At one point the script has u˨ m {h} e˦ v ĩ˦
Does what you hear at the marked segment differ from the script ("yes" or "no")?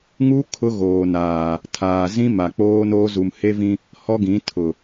no